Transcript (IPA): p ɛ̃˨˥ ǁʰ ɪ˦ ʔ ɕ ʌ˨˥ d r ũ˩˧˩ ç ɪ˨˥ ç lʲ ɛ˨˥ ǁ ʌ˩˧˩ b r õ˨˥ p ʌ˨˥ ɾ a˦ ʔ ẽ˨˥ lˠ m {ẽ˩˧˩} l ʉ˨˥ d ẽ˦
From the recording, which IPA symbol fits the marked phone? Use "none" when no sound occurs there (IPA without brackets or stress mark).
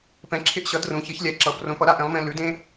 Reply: ẽ˦